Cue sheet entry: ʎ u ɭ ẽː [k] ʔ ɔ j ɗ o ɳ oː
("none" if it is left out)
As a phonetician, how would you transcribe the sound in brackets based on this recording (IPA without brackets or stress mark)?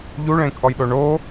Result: k